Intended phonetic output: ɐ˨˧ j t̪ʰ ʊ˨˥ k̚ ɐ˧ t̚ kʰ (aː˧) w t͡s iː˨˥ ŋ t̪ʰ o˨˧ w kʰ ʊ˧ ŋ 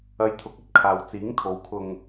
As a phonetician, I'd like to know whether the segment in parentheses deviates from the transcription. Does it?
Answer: yes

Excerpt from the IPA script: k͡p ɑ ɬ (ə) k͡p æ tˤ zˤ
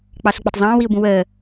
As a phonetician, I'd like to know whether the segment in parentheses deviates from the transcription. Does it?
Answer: no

